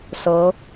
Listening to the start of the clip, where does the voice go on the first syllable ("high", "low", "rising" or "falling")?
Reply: rising